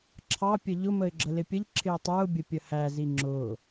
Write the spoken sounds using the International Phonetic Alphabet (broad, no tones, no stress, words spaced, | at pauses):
ǁʰɑpʲə ʎʊməɪ̯ ɡ͡ǁəlɪpʲəʎǁʰɪʊ̯ tˤə˞ʊ̯bʲə pʲəhæzi ŋ͡ǁʊ